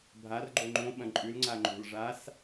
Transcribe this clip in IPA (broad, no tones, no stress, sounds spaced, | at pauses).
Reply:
bʱ a r ɡ͡ǃ o ŋ͡ǃ õ ɓ ɐ̃ ǃʼ ʉ l ŋ͡ǀ a ŋ͡ǃ o̤ l ʐ a s